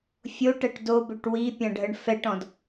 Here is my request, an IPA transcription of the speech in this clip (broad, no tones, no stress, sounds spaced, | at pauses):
fʲ o ʈ ɛ ʈ d o b ø ʈ w i pʲ ã ɖʱ ə ɳ f ɛ ʈ ɔ̃ d